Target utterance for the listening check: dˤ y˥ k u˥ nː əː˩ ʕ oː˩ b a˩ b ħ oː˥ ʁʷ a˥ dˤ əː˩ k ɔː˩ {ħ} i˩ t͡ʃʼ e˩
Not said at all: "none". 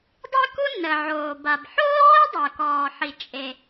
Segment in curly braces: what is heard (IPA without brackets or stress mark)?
ħ